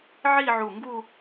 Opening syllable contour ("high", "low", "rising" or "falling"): falling